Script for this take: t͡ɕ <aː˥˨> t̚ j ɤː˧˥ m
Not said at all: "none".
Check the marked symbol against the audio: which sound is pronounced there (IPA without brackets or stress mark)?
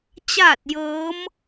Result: aː˥˨